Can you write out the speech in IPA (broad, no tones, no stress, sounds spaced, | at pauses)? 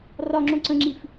r ɒ ŋ͡ǁ õ ǀ ə̃ ŋ͡ǁ i f